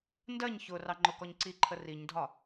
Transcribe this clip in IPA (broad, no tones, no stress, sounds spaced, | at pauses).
n d ɜ ɲ ç ʊ r ɑ ŋ͡ǃ ʊ k ɔ ɲ ǀ i ǃʰ ə r i ɲ dʱ ɒ